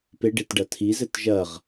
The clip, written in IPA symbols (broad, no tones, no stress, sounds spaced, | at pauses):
p e ɖ e t ɖ ɐ tʰ i z ɘ t ʒ ɐ ʁ